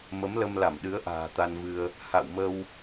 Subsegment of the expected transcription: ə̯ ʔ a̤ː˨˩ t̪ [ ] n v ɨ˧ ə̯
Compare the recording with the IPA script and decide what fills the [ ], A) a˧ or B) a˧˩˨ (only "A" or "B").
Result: A